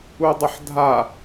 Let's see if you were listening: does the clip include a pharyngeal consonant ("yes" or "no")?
yes